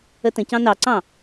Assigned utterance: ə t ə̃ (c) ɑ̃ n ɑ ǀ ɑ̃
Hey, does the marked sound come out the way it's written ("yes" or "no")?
yes